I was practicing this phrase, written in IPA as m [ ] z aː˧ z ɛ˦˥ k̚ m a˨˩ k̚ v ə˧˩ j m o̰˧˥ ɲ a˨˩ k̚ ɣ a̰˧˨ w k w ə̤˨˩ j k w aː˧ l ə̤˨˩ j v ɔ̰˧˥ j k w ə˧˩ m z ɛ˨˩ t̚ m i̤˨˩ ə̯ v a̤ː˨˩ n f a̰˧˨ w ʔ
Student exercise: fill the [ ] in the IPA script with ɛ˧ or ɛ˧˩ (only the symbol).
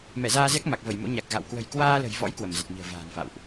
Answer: ɛ˧˩